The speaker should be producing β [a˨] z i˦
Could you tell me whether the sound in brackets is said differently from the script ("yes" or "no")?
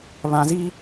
yes